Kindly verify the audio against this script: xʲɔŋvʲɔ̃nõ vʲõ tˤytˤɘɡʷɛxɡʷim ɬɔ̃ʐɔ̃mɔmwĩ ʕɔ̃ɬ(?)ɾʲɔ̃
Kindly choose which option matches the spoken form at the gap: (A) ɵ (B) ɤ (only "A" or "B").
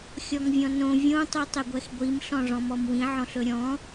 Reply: A